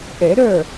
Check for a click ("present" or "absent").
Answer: absent